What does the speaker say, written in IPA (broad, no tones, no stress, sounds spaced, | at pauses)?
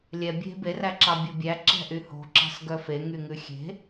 lʲ ɛ bʲ e̤ b e r æ ǁ ɑ bʲ o bʲ æ ǁ ɛ̤ ʔ y h o̤ ǁ ɑ̤ s ɡ œ f e ŋ y ŋ ʉ xʲ e̤